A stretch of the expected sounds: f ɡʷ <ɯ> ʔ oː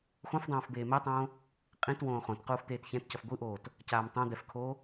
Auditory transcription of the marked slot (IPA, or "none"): ɯ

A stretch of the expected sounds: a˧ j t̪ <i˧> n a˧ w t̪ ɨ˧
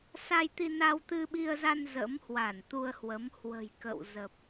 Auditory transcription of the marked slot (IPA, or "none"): i˧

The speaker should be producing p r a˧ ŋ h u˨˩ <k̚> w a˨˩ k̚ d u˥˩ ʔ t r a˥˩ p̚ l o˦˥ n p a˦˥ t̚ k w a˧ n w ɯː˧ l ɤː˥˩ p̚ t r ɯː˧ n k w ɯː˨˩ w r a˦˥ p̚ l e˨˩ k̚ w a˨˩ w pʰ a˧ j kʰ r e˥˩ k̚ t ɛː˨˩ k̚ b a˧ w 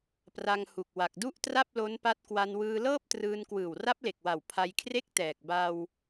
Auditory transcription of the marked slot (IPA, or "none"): k̚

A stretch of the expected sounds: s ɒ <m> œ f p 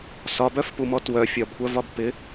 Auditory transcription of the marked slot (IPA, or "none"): b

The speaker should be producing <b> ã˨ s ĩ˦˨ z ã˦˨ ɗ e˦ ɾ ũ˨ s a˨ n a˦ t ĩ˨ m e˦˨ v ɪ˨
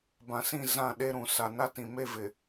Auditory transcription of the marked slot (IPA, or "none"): b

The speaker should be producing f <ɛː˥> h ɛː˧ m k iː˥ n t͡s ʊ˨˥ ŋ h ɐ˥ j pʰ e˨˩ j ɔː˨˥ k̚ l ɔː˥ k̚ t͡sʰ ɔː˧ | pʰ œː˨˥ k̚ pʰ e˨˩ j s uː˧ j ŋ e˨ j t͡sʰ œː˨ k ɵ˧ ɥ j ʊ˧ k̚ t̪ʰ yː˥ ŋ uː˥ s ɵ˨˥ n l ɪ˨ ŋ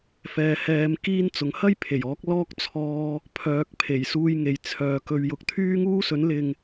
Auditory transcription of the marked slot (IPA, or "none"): ɛː˧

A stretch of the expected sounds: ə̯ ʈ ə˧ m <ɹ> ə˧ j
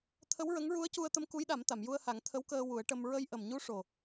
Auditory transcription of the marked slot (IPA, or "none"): ɹ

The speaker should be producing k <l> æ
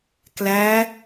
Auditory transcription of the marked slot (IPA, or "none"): l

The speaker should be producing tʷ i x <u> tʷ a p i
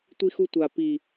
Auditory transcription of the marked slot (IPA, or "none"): u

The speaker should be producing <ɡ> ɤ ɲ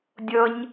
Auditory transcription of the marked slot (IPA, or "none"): dʲ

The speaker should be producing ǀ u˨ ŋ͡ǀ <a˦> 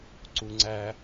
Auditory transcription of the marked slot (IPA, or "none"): æ˦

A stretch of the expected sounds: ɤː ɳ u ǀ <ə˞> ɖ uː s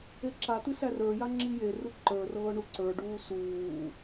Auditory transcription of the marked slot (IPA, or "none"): ə˞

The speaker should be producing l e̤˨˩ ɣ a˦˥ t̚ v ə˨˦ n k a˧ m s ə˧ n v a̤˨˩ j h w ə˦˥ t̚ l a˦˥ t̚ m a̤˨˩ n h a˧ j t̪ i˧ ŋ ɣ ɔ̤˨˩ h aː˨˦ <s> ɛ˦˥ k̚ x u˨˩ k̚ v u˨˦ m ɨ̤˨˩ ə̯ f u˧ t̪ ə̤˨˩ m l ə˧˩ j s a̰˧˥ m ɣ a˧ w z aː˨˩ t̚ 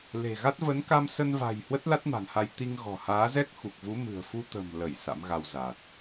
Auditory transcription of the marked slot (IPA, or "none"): z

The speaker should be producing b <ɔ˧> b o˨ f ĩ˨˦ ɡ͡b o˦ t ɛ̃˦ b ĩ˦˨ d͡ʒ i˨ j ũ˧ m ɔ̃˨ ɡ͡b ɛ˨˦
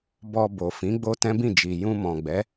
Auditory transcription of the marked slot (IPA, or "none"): ɔ˧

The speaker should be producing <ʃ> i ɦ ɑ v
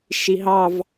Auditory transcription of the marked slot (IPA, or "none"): ʃ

